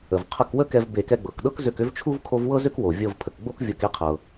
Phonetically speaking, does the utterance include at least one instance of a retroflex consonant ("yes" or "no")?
no